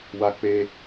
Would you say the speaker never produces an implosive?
yes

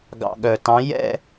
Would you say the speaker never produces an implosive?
no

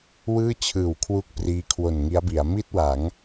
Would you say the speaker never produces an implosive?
yes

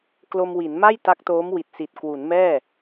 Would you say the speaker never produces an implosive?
yes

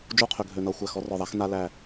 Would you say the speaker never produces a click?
yes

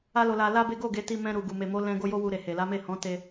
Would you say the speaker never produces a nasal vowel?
no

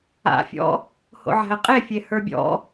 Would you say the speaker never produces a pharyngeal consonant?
no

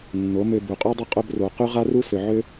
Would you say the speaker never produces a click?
yes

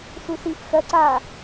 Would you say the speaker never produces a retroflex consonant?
yes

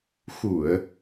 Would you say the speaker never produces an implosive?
yes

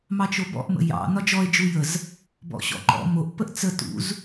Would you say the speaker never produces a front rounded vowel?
yes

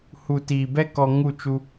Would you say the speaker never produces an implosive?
yes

